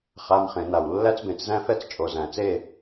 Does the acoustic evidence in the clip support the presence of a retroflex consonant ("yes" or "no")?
no